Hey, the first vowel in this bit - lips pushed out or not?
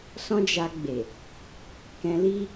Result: yes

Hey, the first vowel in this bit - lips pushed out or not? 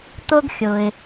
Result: yes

